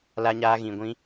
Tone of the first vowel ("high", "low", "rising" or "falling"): high